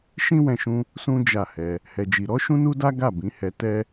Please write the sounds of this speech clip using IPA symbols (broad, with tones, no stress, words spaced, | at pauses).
ʃĩ˦wɛ̃˧ʃũ˧ | sũ˦ d͡ʒa˦˨hɛ˧ | hɛ˧d͡ʒi˧ ɾɔ˦ʃũ˦nu˦da˦ ɡa˦˨bĩ˨˦hɛ˧ tɛ˦